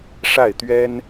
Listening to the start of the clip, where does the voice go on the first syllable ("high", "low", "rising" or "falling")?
falling